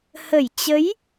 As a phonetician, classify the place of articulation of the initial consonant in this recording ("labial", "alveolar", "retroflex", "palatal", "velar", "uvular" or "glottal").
glottal